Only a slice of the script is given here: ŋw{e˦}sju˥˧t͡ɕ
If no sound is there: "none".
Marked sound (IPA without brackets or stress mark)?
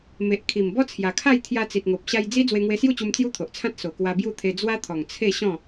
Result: e˧